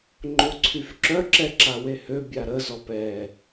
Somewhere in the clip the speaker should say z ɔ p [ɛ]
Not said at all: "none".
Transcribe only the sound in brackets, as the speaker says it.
ɛ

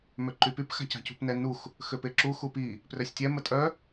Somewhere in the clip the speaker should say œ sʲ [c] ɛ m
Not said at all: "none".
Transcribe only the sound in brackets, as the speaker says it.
tʲ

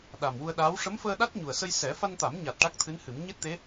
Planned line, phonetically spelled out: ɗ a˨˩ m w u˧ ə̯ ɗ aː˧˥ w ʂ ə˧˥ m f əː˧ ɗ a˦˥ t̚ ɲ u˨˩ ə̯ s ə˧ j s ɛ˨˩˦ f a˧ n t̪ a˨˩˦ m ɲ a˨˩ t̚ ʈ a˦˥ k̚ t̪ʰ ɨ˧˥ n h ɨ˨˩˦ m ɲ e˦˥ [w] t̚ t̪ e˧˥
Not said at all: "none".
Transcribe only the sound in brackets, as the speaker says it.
none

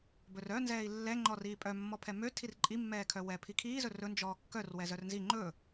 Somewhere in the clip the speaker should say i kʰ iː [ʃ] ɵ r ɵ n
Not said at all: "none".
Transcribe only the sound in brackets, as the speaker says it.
z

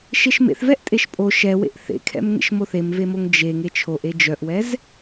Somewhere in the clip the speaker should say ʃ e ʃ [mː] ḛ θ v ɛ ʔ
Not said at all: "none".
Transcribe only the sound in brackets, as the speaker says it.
m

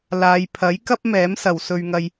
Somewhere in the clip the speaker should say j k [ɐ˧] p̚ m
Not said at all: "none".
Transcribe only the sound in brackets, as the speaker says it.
ɐ˥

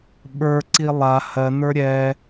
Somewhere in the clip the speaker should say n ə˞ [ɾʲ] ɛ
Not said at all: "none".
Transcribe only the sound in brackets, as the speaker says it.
ɾʲ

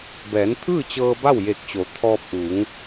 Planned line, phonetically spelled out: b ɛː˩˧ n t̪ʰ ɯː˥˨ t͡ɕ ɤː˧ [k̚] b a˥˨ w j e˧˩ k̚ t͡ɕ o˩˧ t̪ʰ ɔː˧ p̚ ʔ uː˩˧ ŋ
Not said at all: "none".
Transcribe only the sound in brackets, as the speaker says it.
none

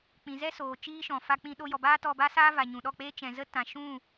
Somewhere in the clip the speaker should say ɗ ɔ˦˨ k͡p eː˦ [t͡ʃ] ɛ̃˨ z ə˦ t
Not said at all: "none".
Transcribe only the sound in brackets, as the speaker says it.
t͡ʃ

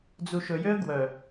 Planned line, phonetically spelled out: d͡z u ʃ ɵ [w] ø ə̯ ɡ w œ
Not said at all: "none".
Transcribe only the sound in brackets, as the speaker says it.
j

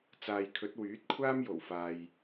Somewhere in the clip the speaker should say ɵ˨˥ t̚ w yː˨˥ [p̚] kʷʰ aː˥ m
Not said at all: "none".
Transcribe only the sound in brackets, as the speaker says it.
t̚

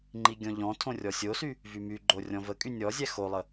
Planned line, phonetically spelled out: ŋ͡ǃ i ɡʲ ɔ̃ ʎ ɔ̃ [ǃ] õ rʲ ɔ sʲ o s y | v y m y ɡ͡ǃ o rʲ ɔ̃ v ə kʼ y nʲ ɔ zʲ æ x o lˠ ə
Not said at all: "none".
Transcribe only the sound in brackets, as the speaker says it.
tʰ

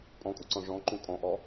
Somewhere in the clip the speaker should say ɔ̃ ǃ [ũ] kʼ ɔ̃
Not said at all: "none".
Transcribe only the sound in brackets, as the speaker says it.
ũ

